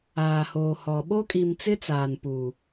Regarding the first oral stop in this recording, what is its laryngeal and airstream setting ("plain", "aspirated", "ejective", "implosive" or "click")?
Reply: implosive